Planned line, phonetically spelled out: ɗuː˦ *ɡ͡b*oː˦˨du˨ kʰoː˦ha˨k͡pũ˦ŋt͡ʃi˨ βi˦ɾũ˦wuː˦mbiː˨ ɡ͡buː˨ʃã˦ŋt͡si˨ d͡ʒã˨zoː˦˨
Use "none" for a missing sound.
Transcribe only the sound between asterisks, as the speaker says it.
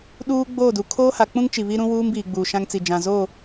ɡ͡b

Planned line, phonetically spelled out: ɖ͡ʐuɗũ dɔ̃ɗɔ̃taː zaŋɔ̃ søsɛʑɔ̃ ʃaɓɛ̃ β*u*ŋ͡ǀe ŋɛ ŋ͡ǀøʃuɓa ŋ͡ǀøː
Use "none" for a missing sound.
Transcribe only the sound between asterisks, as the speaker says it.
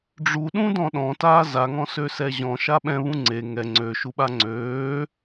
ũ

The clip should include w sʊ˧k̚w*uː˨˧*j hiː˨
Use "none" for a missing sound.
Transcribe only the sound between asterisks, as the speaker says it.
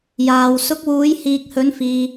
uː˨˧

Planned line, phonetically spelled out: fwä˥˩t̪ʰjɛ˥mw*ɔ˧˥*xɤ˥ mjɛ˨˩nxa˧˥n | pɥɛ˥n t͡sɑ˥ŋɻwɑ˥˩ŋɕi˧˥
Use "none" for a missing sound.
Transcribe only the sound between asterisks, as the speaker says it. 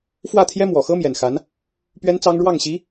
ɔ˨˩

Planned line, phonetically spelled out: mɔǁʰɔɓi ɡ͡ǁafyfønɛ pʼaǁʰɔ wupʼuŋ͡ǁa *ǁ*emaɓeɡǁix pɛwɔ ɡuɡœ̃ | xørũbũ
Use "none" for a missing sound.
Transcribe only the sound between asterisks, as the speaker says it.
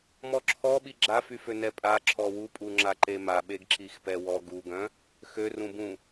ǃ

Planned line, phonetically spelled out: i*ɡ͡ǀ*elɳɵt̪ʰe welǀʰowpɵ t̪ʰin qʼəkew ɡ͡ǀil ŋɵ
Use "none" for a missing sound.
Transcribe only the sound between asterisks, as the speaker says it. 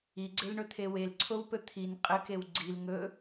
ɡ͡ǀ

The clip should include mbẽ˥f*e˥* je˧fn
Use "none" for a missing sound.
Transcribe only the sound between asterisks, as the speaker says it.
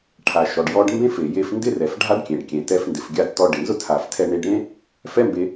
e˩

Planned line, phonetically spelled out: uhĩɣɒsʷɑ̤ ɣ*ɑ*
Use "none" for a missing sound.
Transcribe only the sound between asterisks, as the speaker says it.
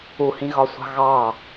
ɑ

